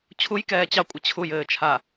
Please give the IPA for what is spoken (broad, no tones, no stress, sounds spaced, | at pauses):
t͡ɕʰ u j k ɛː t͡ɕ ɑ kʷʼ ɘ t͡ɕʰ u j ɘː t͡ʃʰ a